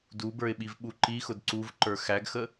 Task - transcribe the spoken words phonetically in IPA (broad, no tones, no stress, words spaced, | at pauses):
dubə˞ɪ̯ɓivɓu ǃixʊd ǀuvǃə˞ xæɡxə